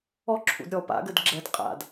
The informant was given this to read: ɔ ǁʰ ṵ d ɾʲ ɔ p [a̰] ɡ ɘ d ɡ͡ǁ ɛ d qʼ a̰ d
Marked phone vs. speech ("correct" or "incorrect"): correct